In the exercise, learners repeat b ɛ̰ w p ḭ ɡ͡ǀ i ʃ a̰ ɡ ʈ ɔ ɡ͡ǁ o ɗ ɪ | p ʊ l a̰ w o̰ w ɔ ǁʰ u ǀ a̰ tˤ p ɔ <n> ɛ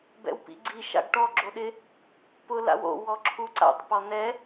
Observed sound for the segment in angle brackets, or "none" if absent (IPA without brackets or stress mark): n